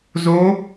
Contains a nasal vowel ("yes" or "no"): no